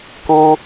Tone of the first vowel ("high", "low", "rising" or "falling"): high